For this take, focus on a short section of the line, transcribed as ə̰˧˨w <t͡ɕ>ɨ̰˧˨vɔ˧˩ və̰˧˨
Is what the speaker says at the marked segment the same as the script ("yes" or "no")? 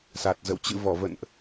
yes